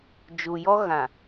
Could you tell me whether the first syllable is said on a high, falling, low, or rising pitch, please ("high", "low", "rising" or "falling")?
low